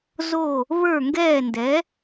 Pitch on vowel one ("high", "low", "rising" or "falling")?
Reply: falling